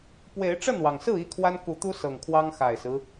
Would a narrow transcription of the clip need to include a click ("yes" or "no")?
no